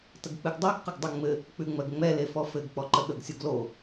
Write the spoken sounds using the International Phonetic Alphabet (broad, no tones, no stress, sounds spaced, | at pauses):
t ə ɡ k͡p ɨ ɡ dˤ ɜ ɡ q ə ɡ dˤ ʉ ŋ͡m ɘ | k͡p ʉ ŋ͡m ɜ ɡ ŋ͡m ɛ l e f ɔ f ɘ ɡ k͡p ɔ ǃ ə ɠ ə ɡ sʲ u ɡ l o